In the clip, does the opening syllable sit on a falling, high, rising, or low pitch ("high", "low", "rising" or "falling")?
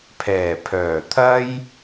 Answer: low